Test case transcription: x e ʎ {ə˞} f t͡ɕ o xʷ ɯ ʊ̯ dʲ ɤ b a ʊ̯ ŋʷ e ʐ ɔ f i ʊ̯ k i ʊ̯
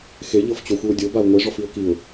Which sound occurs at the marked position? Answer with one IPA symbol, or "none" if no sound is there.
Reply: ɤ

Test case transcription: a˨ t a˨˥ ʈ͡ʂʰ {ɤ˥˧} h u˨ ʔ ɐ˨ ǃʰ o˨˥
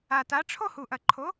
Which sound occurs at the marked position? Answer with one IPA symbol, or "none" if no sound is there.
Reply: o˥˧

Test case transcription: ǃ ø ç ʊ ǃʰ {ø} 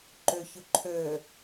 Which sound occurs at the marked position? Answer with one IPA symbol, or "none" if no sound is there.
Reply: ø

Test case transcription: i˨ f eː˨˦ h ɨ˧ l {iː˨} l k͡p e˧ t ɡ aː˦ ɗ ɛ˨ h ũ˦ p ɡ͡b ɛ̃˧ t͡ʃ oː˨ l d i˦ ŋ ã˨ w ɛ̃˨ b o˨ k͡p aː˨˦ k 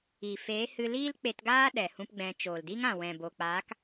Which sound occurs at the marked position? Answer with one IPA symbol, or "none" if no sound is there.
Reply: iː˦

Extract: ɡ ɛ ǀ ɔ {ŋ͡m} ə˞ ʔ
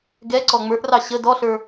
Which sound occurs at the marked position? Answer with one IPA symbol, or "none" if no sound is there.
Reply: ŋ͡m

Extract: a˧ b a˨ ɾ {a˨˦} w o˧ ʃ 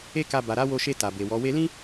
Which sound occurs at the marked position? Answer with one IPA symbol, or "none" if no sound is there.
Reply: a˨˦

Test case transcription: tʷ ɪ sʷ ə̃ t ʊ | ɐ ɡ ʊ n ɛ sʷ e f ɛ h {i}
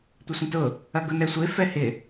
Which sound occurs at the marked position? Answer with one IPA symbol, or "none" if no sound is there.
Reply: ɪ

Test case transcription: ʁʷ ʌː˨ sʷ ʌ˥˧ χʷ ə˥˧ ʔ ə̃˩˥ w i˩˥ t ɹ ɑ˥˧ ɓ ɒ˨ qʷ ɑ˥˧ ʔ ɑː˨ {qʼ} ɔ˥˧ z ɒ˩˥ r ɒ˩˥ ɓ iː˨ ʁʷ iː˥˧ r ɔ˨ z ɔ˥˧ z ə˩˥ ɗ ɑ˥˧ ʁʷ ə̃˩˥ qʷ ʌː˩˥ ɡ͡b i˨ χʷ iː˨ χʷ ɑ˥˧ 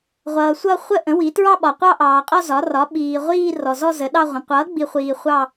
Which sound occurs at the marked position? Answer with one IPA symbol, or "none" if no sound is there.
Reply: qʼ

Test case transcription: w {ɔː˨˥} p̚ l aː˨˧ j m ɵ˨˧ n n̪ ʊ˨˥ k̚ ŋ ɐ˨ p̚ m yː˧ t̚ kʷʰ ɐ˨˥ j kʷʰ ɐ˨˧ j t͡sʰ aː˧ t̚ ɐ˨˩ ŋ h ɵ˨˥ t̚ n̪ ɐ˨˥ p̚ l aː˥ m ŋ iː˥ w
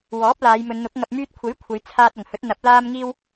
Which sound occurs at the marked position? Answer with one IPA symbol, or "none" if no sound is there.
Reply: ɔː˨˥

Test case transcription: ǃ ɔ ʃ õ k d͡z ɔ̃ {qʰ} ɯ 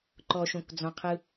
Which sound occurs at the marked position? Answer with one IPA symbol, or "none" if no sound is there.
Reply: qʰ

